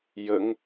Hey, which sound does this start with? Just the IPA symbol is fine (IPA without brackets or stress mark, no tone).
j